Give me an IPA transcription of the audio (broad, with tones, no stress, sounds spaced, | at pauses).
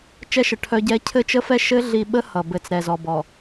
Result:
t͡ʃ ɛ˦ ʃ ə˨ ʈʰ œ˦ ɟ ɛ˦ cʰ ɘ˦ t͡ʃ ə˦ f ɛ˦ ʃ ɘ˦ ɮ i˨ ɓ ə˦ h ʌ˨ b ɘ˨˦ t͡s ɾ ɛ˨ z ɔ˨ b ɔ˨